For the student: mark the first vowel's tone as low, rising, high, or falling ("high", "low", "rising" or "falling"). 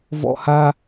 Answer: high